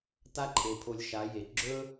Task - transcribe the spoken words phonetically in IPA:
t a˦ ǃʰ e˨ pʰ o˧ lʲ ʃ a˨˦ j e˨ ɡ͡ǁ ɵ˦

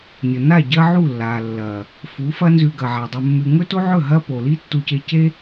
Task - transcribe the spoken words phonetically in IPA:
nʲ o˨ n a˦˨ ɟ ɐ˦ ʕ u˦˨ lː a˨ lː ɐ˨ | f u˨˦ f ɐ˦ n z ʉ˧ ɡ ɐ˨ ʕ a˨ dˤ ɵ˧ mː ʉ˧ ŋ ɵ˦ t o˦ ʕ ɵ˦˨ ɦ ɐ˦ p o˨ l i˦ tː u˧ c e˧ c e˦

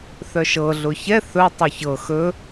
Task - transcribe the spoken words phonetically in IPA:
θ œ ʃ ɤ ɮ ʊ ç ɛ θ ɵ tˤ o ç ɤ x ɵ

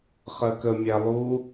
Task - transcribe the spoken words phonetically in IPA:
χ ɜ k ə mʲ æ lˠ u

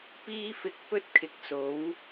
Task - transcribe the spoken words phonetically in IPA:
p iː˥ f ɪ˧ k̚ p ɵ˥ t̚ kʰ ɪ˨ k̚ s o˨˥ w

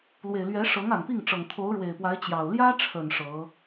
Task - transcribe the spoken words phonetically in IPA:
l w e˨˩ ɪ̯ l ɥ ɛ˧˥ ʂ ɤ˧˥ ŋ a˨˩ n p i˥˩ ŋ ʈ͡ʂ ɤ˨˩ ŋ t̪ʰ o˧˥ ʊ̯ ɻ w e˨˩ ɪ̯ p w a˧˥ ɪ̯ t͡ɕ j ɑ˨˩ ʊ̯ l j ä˥ ʈ͡ʂʰ ə˨˩ n ʂ ɤ˧˥

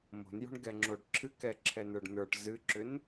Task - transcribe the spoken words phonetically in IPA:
m o̤ n j o̤ ɳ ɡ ɛ ŋ͡ǁ o ɖ ǁʰ ɨ k ɛ ǁʰ ɛ n ə˞ ɖ n ə˞ ʈ z ɨ ǁ ʏ n

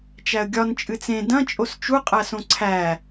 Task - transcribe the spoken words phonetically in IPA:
t͡ʃ æ ə̯ ɡʲ ɒ n t͡ʃʼ ɨ t͡s ẽ d ɐ̃ t͡ʃʼ o s t͡ʃ u qʼ æ s õ ǀʰ æ

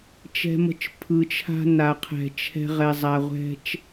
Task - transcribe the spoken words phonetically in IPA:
t͡ʃ ɛ̤˧ m ə̤˧ t͡ʃ pʰ ɯ˨ t͡ʃʰ a̤˧ n a˨ qʰ ɛ̤˨ t͡ʃʰ ɛ̤˧ ʁ ɛ˨ zˤ a˨ ʁʷ ɛ̤˧ t͡ʃ

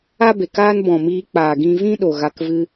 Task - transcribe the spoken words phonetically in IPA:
a˦ b e˨ k aː˦ n b ɔ̃˨ m iː˧ k͡p aː˨ ɡ ĩ˧ v ĩ˦ ɗ o˨ ɣ a˧ k v ɨ˧

